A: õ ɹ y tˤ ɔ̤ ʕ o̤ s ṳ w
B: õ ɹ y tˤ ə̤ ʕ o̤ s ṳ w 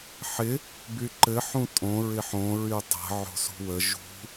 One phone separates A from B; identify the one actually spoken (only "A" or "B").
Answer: B